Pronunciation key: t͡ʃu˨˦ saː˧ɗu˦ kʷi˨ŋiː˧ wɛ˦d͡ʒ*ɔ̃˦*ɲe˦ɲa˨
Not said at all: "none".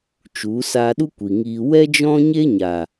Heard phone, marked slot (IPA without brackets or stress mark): ɔ̃˦